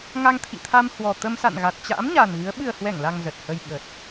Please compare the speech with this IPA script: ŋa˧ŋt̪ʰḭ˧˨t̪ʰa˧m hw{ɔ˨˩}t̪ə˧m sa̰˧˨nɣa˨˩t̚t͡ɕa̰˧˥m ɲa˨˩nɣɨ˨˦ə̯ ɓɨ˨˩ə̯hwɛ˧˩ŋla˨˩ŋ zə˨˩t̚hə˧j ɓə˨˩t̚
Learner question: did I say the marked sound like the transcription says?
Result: yes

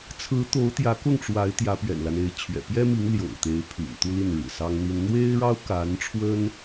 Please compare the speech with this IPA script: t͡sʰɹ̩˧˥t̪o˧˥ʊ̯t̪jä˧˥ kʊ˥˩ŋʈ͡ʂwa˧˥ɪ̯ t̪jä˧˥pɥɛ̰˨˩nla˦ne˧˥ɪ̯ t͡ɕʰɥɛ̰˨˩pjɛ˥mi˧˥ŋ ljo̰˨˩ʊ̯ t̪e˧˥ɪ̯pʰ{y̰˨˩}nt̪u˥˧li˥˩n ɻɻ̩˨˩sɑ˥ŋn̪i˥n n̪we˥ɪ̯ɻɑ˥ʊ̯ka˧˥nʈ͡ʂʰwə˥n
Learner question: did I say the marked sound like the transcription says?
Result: yes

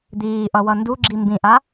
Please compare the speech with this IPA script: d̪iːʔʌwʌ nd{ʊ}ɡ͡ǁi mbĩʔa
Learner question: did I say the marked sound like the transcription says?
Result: no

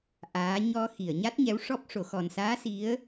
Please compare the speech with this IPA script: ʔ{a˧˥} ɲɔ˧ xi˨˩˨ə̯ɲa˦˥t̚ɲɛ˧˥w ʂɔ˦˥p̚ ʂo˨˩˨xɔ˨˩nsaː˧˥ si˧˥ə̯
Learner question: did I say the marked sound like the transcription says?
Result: no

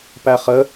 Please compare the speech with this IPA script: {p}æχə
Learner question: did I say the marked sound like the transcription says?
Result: yes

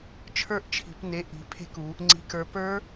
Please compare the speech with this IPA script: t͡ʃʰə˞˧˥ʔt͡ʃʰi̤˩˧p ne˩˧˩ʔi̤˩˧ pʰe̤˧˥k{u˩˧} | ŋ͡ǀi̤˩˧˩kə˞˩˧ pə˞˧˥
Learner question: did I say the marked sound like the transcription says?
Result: yes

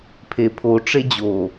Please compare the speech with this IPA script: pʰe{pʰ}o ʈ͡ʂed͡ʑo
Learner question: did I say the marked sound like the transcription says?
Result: yes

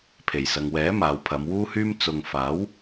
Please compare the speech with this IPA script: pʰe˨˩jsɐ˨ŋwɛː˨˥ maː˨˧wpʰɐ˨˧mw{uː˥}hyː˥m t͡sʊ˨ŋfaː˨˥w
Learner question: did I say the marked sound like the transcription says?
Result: yes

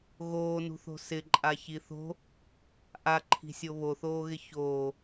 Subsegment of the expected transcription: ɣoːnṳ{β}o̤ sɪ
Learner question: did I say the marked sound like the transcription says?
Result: no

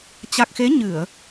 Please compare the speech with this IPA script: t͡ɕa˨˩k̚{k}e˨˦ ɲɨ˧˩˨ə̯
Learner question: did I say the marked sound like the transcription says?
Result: no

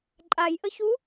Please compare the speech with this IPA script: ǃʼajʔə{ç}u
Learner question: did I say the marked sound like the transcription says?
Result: yes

